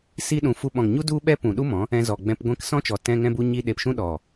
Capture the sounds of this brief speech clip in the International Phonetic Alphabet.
s i˦ ɗ ũ˧ f u˧ ɓ ɔ̃˨ ŋ ɲ u˦ d u˦ ɓ ɛ˦ p ũ˨ ɗ u˦ m ɔ̃˨˦ | ɛ̃˧ z ɔ˨ ɡ͡b ɛ̃˧ p ɡʷ ɛ̃˧ k s ɔ̃˦ t͡ʃ ɔ˨ t ɛ̃˧ ŋ ɛ̃˧ b u˧ ɲ i˧ ɗ e˧ p ʃ ũ˦ ɗ ɔ˨

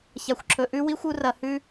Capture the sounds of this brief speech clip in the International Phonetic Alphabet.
ç a˨ xʷ ǁʰ ɵ˨ ʔ ʉ˦ w i˦ xʷ u˦ r ɐ˧ h ʉ˦

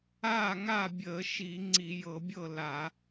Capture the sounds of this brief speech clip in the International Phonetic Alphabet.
aː˥˩ ŋ a˥˩ bʲ əː˧˩˧ ʃ i˧˩˧ ŋ͡ǀ i˧˩˧ j ɤ˧˩˧ bʲ ɤ˥˩ l a˧˩˧

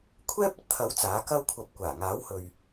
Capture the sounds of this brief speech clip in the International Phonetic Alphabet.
kʷʰ ɛː˥ p̚ ɐ˧ t̚ t̪ʰ ɐ˨˥ w t͡s aː˨˥ k ɐ˥ w kʷʰ ɐ˧ p̚ kʷ aː˨˩ ŋ aː˨˥ w h ɵ˨ ɥ

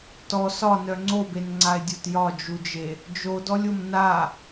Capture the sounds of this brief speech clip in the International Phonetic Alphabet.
t ɔ s ɒ n œ ŋ͡ǀ o b e n ŋ͡ǀ a e̯ dʲ o t j ɒ d͡ʒ u d͡ʒ e | d͡ʒ o d ɔ lʲ o m n a

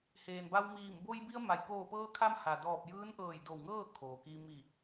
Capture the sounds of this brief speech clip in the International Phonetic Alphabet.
h eː˩ n b a˧ w m iː˧˩ m b o˧ j b i˧ ə̯ m a˩ j k oː˧˩ p ɤː˧ kʰ a˧ m h a˩ d ɔː˧˩ p̚ j ɯː˧˥ n ʔ ɤː˧˩ j d o˧˩ w ŋ ɤː˥˨ kʰ oː˩ k i˧ m i˧˩

